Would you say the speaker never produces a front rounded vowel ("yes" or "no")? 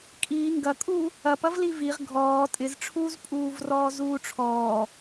yes